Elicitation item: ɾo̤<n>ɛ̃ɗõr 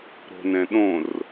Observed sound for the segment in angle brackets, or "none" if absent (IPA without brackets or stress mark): n